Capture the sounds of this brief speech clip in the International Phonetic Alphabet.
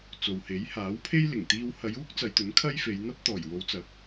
t͡s o˨ w h e˨˥ j h aː˨˥ w pʰ e˥ j l ɪ˨˩ ŋ t̪ iː˥ w h ɐ˨˧ j uː˥ k̚ t͡s ɐ˨˧ j t̪ ɵ˨˥ n kʰ ɐ˥ j f e˨˧ j n̪ ɐ˥ p̚ t̪ ɔː˨˩ j w o˨˧ w t͡s ɐ˨˥ k̚

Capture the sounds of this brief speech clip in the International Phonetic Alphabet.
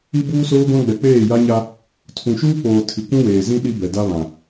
i˦ b uː˦ s oː˦ ɡʷ ã˦ ɡ͡b ɛ˨ k͡p eː˦˨ j a˦ ɲ a˦ | tʰ ũ˨ ʃ uː˦ k͡p oː˨ tʰ i˨ kʷ ũ˦ w eː˨ z ĩ˦ ɗ i˦ b ɛ˨ d a˦ β ã˨

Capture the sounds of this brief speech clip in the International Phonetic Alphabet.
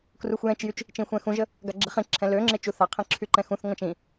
k r u xʷ j ɛ̃ t͡ʃ j y t͡ʃ | t͡ʃ ĩ xʷ ɛ̃ x ũ ʒ ə | ɡ a ɡ͡ǁ e χ ĩ ǁʰ ɛ̃ l ø ŋ͡ǁ e t͡ʃ u θ a qʰ ĩ ǁʰ y ǃ ɛ̃ x ũ θ ŋʷ ã t͡ʃ ĩ

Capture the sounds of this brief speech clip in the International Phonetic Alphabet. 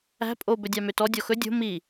æ̤ pʼ o b ɵ dʲ ɑ m ø t ɔ dʲ ɔ x ɵ dʲ o̤ m i

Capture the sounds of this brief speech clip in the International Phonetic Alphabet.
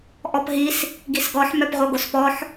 ʔ ɔ p ɦ i s | ɡ i s ɡ ɔ ħ m œ p ʁ o ɡ o s p ɔ ħ

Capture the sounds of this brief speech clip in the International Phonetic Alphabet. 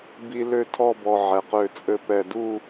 b i˥ l ø˥˧ tʰ ɔ˥˧ b ɔ˧ ʕ ɛ˧ q ø˥˧ t͡sʼ ɘ˥ p ɛ˥˧ d u˥˧

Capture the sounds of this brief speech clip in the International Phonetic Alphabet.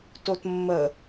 t o t mː ə

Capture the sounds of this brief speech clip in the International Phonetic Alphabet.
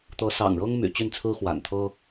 t̪ ɤ˧˥ s ɑ̰˨˩ ŋ ɻ ɤ˥ ŋ m y̰˨˩ t͡ɕ y˥˩ n t͡sʰ ɹ̩˥ x w a̰˨˩ n t̪ʰ ɤ˥

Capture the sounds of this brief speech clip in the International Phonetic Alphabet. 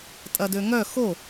tʼ ɐ d ø ŋ œ x o

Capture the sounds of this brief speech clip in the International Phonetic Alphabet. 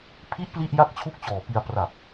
pʰ i˦˥ ʔ p l i˥˩ ʔ j a˥˩ k̚ t͡ɕʰ u˥˩ k̚ t͡ɕ ɔː˨˩ p i˧ a̯ p r a˨˩ p̚

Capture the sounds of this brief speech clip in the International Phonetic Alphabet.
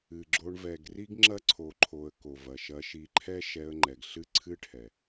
ɨ˨ ɡ͡ǁ o˧ ɳ v ɛ˨ ɡ r i˦ ɡ ŋ͡ǁ ɐ˦ ǀʰ o˨ ǃʰ o˨ ə̯ k o˨ v ɐ˨ ʃ ɐ˧ ʃ i˧ ǃʰ ɛ˦ ʃ ɛ˧ ə̯ ŋ͡ǃ ɛ˨ ɡ ɬ ɨ˦ ǀʰ ɨ˦ ʈʰ ɛ˨

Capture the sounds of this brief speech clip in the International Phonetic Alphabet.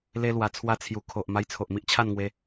l e˧ l w a˧ t͡sʰ w a˥˧ t͡sʰ j u˧ kʰ o˨ ʔ m a˧ j t͡sʰ o˨ ʔ m i˦ ʔ t͡ɕʰ a˥˧ n ŋ w e˧

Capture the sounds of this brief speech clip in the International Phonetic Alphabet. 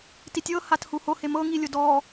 t i tʲ ɤ h a t h u h o h e m ɤ ŋ i lʲ o d ɔ

